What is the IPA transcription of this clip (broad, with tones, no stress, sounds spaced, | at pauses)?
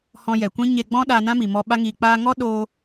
h ɔ̃˧ j ɛ˨ kʷ ĩ˦ ɲ e˧ ɡ͡b ɔ̃˦ ɗ a˧ n ã˦ m i˨ m ɔ˧ ɓ a˧ ŋ iː˨ k͡p aː˧ ŋ ɔ˦ ɗ o˧